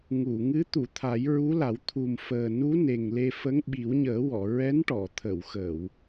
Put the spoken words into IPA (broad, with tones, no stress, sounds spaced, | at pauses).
ŋ u˨˩˨ ŋ ɨ˧˥ t̪ u˨˩˨ t̪ʰ a˨˩˦ j ɹ u˧˥ l a˨˩˦ w t̪ʰ u˨˩ m f əː˨˩ n u˧˥ n e˨˩ ŋ l e˧ f ə˧˥ ŋ ɓ i˨˩˦ w ɲ əː˨˩˦ w ɔ˨˩˨ ɹ ɛ˧˥ n ʈ ɔ˨˩˨ t̪ʰ ə˨˩˨ w x ə˨˩˨ w